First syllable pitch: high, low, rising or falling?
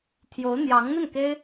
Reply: rising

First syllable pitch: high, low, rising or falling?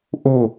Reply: falling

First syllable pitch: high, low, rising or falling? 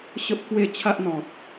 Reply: high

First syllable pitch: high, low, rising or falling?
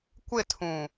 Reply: falling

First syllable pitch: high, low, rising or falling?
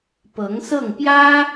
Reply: rising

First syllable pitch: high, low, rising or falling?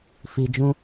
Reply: low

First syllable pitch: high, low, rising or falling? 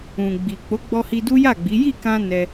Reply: low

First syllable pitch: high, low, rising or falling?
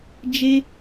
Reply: high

